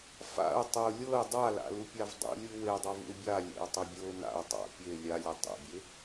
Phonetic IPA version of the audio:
f a̰ ə̯ tˤ ɛ ʊ̯ lʲ ɤ ɪ̯ dˤ a l a̰ l u pʲ a v dˤ ṵ lʲ ɯ w e dˤ a v ṵ ɪ̯ bʲ a lʲ ɛ̰ ʊ̯ tˤ ɤ bʲ ɤ ʊ̯ n a̰ ʊ̯ tˤ a̰ pʲ e lʲ a lʲ ɛ tˤ ḛ bʲ e

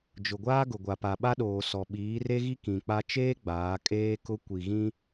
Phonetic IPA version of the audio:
d͡ʒ ʊ˨ ɡʷ aː˦ ɡ ʊ˨ ɡʷ a˨ p a˨ ɓ a˦ ɗ oː˨ s ɔ˨ ɓ iː˨˦ r e˦ ɣ i˦ k ĩ˨ k͡p a˦ t͡ʃ eː˦ ɡ͡b aː˨˦ kʼ eː˦ k ʊ˦ kʷ i˨ ɣ ĩ˦

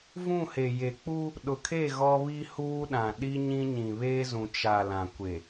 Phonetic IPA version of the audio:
v ũ˦˨ h e˨ j e˨ k͡p u˦ | ɗ ʊ˨ kʰ e˦˨ ɣ ɔ˦ β i˦ h uː˦ ɗ ã˨ ɗ i˦ ɲ ĩ˦ ɲ ĩ˨ β eː˦ z ũ˨ t͡ʃ a˨ l ã˨ kʷ e˨

